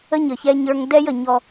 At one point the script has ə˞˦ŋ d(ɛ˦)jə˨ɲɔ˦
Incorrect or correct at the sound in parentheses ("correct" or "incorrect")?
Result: correct